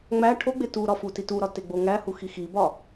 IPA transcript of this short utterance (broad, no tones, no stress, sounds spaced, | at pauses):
ŋ͡m æ ʈʰ o ɡ͡b e t u ɾ ɒ f u t i t u ɾ ɒ t e ɡ͡b o ŋ æ h u x i x i b ɒ